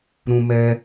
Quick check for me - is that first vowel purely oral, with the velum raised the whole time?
no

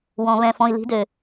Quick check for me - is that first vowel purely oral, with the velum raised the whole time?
no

